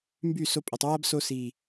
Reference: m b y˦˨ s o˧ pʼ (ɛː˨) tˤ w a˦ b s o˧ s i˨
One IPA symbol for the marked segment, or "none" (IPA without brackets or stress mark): ɛ˨